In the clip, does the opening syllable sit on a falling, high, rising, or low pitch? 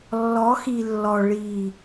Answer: rising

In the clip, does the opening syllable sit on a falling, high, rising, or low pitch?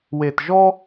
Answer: low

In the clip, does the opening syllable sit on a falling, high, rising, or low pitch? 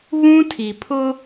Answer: high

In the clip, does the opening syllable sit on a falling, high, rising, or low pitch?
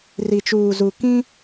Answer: low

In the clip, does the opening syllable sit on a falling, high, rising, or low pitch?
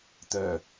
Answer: low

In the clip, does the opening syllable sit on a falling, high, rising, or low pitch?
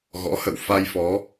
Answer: rising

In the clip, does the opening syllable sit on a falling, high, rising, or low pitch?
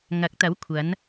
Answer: rising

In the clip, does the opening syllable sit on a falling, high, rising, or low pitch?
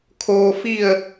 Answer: low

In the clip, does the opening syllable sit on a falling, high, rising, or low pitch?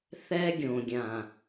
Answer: high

